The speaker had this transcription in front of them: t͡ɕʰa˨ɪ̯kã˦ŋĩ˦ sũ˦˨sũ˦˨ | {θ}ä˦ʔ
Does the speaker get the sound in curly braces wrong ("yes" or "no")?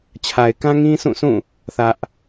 no